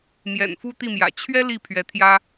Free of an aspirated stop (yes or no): no